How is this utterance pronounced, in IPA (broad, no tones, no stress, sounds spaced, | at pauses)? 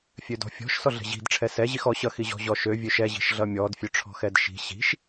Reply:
fʲ ø d ɔ̤ fʲ ɔ̤ ʃ s ɔ ɮ ɛ̤ ʑ i̤ d ʈ͡ʂʰ ɛ s ɛ ʑ i x ɔ ɕ ʌ x i ʑ ɔ̤ ʑ ɔ ʃ ø vʲ ø ʃ ɛ ʑ i̤ ʃ ɮ ʌ mʲ ɔ d fʲ ø ʈ͡ʂʰ ɔ̤ x ɛ d ʃ i̤ ɕ i̤ ʃ